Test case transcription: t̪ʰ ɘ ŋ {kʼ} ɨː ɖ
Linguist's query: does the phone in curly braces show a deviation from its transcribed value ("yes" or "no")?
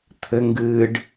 yes